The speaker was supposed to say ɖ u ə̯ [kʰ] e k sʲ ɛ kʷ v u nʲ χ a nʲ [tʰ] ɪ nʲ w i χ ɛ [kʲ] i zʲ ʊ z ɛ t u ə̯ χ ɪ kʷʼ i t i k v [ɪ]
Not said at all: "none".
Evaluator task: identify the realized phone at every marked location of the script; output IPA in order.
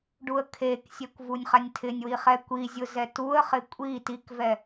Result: kʰ, tʰ, kʷ, ɛ

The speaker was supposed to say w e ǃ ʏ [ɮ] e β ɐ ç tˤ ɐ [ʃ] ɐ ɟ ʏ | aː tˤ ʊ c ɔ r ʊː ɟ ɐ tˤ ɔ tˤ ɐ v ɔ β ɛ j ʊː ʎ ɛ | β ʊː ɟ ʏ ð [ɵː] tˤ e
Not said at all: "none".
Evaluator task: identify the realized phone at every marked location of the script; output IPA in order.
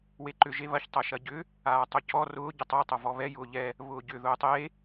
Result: ʒ, ʃ, ʊː

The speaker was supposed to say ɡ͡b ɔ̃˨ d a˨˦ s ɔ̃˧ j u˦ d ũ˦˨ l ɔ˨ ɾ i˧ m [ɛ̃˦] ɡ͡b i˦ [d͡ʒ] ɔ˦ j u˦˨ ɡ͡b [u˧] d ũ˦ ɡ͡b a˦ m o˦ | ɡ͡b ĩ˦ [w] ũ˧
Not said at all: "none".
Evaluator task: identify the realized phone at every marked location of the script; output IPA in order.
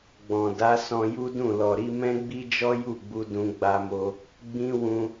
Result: ɛ̃˦, d͡ʒ, u˧, w

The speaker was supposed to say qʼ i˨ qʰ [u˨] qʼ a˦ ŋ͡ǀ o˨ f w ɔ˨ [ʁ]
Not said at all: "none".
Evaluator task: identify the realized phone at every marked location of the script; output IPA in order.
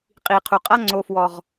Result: u˨, ʁ

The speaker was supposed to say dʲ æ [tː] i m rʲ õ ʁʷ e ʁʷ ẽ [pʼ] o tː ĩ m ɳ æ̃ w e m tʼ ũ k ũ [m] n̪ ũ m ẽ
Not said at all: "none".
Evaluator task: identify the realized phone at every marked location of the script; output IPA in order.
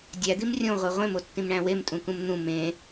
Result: d̪, m, m

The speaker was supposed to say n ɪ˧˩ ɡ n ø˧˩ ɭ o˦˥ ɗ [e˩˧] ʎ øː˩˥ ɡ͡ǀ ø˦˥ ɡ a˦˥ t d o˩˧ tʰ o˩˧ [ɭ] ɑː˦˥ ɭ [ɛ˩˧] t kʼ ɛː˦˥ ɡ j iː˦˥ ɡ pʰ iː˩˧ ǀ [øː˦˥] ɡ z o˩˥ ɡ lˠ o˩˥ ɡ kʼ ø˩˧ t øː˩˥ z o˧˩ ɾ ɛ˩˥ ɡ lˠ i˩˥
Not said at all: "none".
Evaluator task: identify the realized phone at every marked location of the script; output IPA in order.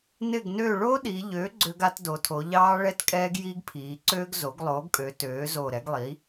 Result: i˩˧, ʎ, ɛ˦˥, øː˦˥

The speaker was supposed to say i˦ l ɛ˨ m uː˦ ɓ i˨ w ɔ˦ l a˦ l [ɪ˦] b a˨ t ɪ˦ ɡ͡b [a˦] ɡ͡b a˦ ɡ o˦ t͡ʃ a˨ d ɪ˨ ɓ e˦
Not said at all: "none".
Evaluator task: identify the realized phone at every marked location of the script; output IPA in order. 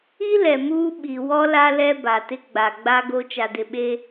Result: ɛ˦, a˨

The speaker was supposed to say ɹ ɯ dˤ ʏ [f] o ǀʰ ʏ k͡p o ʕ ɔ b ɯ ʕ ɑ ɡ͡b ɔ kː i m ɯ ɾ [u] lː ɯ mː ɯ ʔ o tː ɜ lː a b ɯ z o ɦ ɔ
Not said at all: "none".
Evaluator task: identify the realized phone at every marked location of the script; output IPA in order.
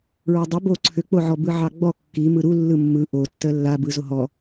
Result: b, u

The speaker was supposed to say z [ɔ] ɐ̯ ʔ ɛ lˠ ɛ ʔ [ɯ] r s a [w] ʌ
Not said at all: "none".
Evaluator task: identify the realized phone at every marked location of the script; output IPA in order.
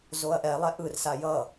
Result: o, ɯ, j

